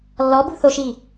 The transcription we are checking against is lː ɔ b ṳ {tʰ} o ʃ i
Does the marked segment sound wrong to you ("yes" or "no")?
yes